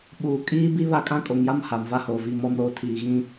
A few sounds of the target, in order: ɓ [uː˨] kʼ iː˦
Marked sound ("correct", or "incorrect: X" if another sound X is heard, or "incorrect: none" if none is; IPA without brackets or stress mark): correct